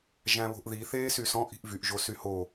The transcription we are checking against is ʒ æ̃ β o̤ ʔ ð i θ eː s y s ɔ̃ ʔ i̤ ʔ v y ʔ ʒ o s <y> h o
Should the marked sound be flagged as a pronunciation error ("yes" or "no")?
no